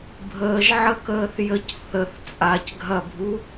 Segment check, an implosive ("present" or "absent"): absent